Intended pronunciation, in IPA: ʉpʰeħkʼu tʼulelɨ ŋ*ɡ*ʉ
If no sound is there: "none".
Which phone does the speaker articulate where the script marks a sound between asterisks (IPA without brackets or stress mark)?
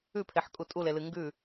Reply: ɡ